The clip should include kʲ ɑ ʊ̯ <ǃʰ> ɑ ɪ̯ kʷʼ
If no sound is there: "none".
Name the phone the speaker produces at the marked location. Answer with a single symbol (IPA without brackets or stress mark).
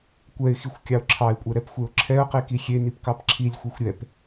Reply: ǁʰ